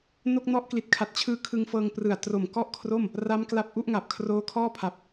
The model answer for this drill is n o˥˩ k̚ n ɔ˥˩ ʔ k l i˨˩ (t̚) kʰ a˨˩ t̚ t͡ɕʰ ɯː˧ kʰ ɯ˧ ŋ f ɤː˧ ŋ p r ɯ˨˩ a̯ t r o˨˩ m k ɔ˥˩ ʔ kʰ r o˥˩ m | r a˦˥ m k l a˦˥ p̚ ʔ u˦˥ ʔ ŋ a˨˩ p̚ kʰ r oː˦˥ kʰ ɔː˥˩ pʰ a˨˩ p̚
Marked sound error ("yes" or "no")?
no